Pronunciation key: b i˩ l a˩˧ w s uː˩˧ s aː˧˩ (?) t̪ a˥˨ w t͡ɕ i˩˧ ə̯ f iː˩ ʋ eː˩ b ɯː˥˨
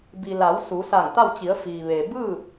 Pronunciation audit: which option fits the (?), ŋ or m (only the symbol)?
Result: ŋ